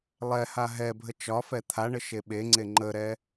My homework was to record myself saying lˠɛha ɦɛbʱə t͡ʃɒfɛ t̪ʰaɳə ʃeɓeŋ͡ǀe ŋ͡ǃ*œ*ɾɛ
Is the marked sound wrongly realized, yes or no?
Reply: yes